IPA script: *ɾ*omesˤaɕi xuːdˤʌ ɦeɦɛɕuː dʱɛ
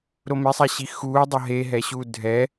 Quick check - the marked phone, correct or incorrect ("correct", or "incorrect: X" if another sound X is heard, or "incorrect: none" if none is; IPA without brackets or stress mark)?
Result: correct